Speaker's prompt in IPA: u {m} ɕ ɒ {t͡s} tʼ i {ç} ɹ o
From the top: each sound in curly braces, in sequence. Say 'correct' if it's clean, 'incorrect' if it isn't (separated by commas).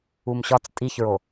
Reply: correct, correct, correct